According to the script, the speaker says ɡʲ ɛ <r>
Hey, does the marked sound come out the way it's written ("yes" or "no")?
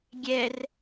yes